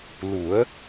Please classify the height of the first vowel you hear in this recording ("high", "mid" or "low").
high